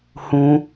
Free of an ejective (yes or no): yes